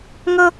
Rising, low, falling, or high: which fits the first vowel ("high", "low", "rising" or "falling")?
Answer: high